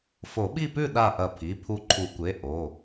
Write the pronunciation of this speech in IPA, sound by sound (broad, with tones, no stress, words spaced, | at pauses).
fo˨˩˦ɓi˥˨pʉ˥˨ɗa˧˩ ʔɐ˧˩pʰi˩˧˩ pʰu˧˩ǃʰu˨˩˦kʷe˩˧˩ ʔo˩˧˩